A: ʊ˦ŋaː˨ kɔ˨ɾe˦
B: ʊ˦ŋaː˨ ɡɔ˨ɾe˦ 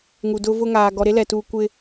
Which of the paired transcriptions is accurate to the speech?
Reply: B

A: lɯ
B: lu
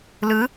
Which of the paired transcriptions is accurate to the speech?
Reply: A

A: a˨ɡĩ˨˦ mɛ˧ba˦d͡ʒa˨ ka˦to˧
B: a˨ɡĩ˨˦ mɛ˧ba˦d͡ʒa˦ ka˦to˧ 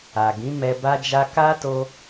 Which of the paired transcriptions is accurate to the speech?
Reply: B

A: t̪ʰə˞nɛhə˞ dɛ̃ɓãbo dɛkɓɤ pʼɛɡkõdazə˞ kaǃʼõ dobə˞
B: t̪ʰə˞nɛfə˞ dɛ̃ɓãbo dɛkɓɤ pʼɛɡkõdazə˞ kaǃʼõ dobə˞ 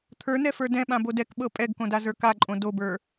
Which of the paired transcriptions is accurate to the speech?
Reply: B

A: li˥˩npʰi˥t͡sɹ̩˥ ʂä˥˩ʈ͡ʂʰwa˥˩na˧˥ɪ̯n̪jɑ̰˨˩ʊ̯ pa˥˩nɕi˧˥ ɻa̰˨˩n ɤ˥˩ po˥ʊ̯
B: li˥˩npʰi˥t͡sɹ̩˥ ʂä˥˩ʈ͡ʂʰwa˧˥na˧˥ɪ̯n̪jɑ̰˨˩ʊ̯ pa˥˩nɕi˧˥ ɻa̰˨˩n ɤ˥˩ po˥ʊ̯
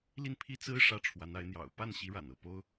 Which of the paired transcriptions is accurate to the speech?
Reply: B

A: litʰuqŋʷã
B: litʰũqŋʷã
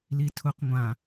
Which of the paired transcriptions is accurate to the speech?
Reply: A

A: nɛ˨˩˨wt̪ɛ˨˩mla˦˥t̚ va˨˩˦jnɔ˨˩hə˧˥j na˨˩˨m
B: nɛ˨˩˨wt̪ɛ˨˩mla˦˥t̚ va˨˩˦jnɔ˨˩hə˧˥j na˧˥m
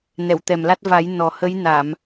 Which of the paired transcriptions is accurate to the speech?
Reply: A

